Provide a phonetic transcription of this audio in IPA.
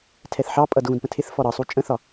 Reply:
tʰ ɛ θ ħ ɑ pʼ ʌ d ɣ ũ d p ə̃ tʰ ɪ θ f ɔ ɾ ʌ sˤ u t͡ʃʼ ə̃ θ ɒ

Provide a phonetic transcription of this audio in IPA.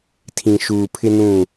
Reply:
tʰ ĩ˨ ʃ uː˨ pʰ ɪ˦ n ũ˦˨

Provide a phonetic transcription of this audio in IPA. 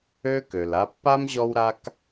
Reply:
ø˥ k ø˩ l a˦ pː a˥ m ʑ ɔ˦ w ɾ a˦ k

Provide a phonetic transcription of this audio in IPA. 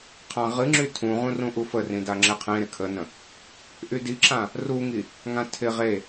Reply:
qʰ ã ʁ ɨ ŋ͡ǁ y tʰ ũ ʁ ũ r ũ ʔ u f ə r ĩ d a ŋ͡ǁ ɪ qʰ ẽ ɾ ɪ kʰ ə n ə̃ | ʔ y d i ǁ ã | r u ŋ i | ŋ ã tʰ ɪ ʁ e

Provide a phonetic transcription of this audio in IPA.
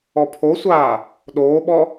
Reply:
ɔ pʰ o sʷ aː | ɗ oː ɓ ɔ

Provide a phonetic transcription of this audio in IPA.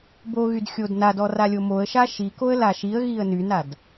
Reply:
b o ɣ y d xʲ o d n a d ɔ r a lʲ o m o ə̯ ʃ a ʃ i k o ə̯ l a ʃ i ə̯ ɣ i ə̯ n y n a d

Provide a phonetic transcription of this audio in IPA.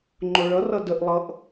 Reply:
ŋ͡ǃ o ɭ ʌ r ʌ d ə ʔ lˠ ʌ ʔ

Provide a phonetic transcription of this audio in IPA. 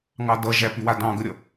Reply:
ŋ ɑ d ʌ ʒ æ p y w a d ɑ̃ ɡ ə ɾʲ ʌ

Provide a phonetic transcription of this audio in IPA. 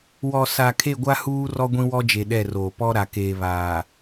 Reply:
w ɔ˨ s a˨ kʰ e˦˨ ɡʷ a˦ h uː˦ r ɔ˦ ɡʷ ĩ˦ w ɔ˦ d͡ʒ e˨ ɗ ɛ˦˨ r oː˨ p ɔ˦ ɾ a˨ k eː˨ β aː˨

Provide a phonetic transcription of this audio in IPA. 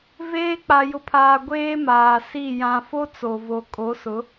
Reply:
v eː˦ k͡p a˨ j ʊ˨ pʰ aː˨ ɡʷ eː˦ m aː˨ s i˦˨ j ã˨ f o˦ t͡s o˨ v o˨ kʼ o˨˦ s ʊ˨˦

